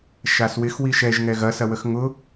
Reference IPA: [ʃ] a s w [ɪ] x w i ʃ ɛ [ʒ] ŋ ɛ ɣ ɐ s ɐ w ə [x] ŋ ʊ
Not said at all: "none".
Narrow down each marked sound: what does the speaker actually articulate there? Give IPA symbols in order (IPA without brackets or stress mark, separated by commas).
ʃ, ɪ, ʒ, x